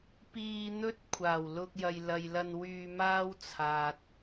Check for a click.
absent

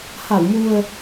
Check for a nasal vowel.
absent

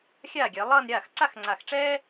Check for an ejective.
absent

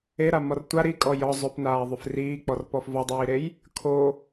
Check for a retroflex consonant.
absent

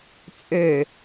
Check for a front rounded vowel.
present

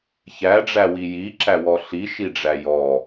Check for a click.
present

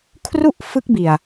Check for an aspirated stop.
present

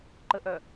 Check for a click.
present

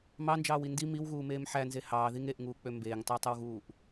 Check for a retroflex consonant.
absent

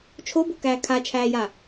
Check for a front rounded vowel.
absent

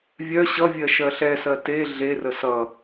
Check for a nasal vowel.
absent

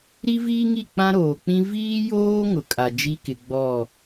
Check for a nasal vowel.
present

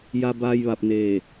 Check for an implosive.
absent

